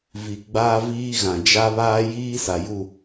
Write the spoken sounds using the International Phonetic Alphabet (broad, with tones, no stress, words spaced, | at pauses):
vi˨ɡ͡baː˦viː˦ɣã˨ d͡ʒa˦βaː˦ jiː˦sa˨ju˦˨